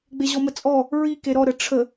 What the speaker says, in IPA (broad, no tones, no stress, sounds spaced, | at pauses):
ɡ͡b e ʑ ɔ m ə t͡sʼ ɔ | ɹ i k e ɾ ɔ ɾ ə ʈ͡ʂʰ ə